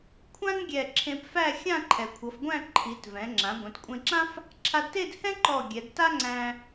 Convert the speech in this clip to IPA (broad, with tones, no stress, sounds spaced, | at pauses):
kʷʰ ã˥ n ɡʲ ɛ˧˩ ǁʰ ẽ˧ p f æ˥˧ xʲ ã˥˧ ǃʰ ɛ˩˧ kʷʰ ʌ˩˧ f ɡʷ æ̃˥˧ ǃʰ i˩˧ t v ɛ̃˩˧ ŋ͡ǁ ã˩˧ ɡʷ ɛ̃˩˧ t kʷʼ ẽ˧ ǁ ã˥ f | ǁʰ a˧ d t e˥˧ d h ɛ̃˥ ǃ ɔ˧˩ ɡʲ ɛ˩˧ d t a˥ ŋ͡ǀ æ̃˧